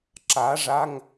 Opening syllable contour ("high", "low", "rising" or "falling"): rising